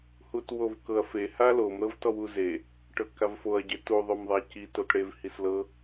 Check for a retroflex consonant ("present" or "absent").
present